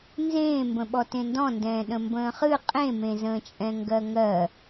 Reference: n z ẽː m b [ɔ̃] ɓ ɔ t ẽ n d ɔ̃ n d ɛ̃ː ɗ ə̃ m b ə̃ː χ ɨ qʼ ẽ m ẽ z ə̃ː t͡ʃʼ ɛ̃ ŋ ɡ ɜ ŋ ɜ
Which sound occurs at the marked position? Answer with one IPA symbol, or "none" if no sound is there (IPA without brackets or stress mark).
ə̃